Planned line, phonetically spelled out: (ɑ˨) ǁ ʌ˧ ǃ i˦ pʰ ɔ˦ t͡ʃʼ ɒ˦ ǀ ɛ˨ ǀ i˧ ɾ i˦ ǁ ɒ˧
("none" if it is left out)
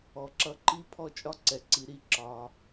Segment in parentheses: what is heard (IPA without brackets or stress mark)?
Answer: ɔ˨